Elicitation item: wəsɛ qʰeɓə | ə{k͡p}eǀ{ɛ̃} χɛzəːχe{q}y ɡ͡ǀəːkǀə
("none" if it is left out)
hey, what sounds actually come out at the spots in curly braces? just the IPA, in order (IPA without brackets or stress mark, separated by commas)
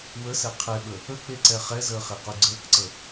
k͡p, ɛ, q